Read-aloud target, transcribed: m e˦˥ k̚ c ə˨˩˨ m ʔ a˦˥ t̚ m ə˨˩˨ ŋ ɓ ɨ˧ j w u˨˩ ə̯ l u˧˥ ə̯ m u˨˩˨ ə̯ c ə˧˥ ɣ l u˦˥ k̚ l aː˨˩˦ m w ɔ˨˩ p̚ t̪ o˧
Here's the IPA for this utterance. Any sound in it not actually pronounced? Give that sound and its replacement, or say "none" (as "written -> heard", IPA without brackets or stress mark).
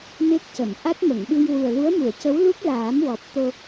ɣ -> w